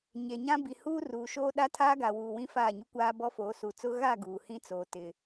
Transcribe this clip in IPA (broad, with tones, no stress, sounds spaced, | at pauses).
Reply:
ɲ e˨ ɲ ã˦ b i˨ h uː˦ r uː˨ ʃ oː˦ ɗ a˦ tʰ aː˦ ɡ a˨ w uː˨ w ĩ˦ f aː˦˨ ɲ u˦ kʷ aː˦ b ɔ˦ f oː˨˦ s u˨ t͡s ʊ˦ ɣ a˦˨ ɡ uː˨ h ĩ˦ t͡s oː˨ t ɪ˨